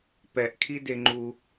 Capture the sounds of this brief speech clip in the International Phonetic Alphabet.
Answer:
p ɛ ʔ kʰ i d e ŋ͡ǃ u

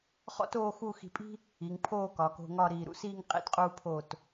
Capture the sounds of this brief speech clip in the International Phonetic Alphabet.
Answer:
χ ɔ̰˥ t oː˥˧ x u˥˧ x i̤˧ pʼ i̤˥ | i˩˧ ŋ pʰ oː˥˧ k ɒ˩˧ k o̤˧ ŋ ɒ˥˧ ɾ iː˧˩ ɾ ṵ˧ s iː˥˧ ŋ qʼ ḭ˥˧ t qʼ uː˥ pʰ oː˥˧ t

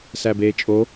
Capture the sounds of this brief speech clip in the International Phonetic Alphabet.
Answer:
s æ b eː t͡ʃʼ o

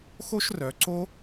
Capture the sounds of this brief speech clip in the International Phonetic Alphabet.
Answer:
x o˥ ʃ r œ˩˧ ǀ o˥

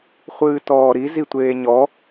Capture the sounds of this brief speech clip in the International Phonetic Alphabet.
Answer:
χʷ ɨː t ɔː ɾ i z i tʷ eː ɲ ɔ

